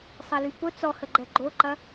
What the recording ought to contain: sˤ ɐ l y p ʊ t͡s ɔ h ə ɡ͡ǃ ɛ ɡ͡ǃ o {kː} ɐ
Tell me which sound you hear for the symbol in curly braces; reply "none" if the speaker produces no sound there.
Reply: ǃ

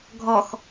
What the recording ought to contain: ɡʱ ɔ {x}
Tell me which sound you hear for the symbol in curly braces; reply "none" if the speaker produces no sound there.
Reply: x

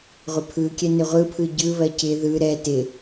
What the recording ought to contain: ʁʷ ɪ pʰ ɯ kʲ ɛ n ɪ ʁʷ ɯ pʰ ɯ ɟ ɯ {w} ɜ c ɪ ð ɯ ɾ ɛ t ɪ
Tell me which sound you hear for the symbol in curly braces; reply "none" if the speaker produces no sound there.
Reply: β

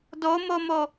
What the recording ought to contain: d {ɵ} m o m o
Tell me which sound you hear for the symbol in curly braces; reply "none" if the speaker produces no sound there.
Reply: o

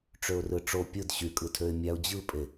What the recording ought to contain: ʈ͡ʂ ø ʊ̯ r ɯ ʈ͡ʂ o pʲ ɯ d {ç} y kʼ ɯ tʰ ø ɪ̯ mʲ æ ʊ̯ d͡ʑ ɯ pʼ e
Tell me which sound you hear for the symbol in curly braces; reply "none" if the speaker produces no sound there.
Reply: ɕ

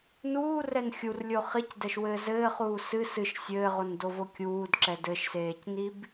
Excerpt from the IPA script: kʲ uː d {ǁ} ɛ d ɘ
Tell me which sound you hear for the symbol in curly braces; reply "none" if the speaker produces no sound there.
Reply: ǁ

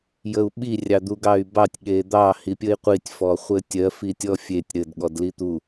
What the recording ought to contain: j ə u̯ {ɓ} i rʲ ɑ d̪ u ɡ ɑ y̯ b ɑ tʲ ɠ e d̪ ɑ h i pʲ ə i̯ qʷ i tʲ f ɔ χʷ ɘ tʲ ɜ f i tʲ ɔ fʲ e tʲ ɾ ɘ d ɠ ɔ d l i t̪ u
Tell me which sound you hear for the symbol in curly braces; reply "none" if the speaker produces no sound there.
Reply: ɓ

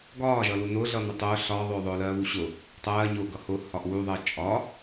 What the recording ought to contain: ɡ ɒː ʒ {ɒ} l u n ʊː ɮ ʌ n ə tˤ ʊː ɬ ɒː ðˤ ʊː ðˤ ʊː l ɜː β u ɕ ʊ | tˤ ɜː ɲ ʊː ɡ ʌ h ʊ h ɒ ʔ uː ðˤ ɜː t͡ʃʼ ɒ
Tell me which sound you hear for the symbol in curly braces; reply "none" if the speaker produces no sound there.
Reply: ʌ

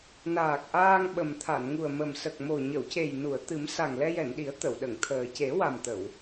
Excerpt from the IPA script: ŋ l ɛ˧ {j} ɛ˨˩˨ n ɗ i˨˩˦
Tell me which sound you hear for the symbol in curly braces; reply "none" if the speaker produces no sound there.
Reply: j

